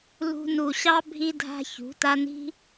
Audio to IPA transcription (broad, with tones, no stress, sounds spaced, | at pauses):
l ṳ˧ n u˨ ɕ ɑ˦ bʱ i˦ dʱ a̤˦ ç ṳ˨˦ t a˦ n i̤˦